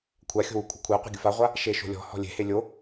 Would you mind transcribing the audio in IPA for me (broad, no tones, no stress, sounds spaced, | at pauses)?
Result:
kʷʰ a xʲ o̤ w u kʷʰ ɪ kʷʰ ɛ qʷ e̤ ɡʲ ʊ f a ʁʷ a | ʃ e ʃ o̤ lʲ ɔ̤ h ɔ̤ lʲ e̤ h e lʲ o